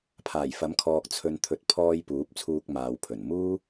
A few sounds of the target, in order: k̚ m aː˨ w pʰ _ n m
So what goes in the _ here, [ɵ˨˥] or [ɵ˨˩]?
ɵ˨˩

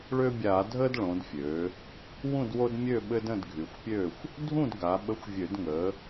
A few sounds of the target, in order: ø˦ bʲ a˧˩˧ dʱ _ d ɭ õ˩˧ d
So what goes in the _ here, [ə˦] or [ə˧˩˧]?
ə˦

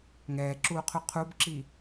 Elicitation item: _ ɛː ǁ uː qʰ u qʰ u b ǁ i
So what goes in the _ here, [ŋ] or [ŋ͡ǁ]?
ŋ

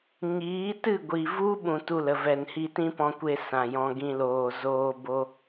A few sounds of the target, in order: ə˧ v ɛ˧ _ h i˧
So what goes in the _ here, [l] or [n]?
n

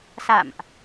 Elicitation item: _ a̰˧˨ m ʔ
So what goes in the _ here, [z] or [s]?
s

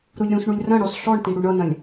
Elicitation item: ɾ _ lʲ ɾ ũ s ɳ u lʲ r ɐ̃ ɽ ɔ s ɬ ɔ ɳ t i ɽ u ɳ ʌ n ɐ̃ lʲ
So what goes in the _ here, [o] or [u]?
u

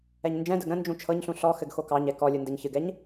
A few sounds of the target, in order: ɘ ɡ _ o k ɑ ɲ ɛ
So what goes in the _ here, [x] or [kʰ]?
x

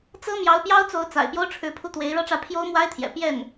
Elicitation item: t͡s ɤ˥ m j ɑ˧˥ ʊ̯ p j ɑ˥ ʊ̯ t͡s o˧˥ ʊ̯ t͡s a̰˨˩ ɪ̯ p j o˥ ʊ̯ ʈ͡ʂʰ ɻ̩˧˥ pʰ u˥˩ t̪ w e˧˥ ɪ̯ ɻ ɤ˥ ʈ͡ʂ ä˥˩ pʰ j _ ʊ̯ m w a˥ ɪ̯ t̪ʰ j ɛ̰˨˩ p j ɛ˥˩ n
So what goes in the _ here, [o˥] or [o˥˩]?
o˥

